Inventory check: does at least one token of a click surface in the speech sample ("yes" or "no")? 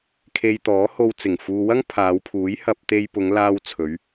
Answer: no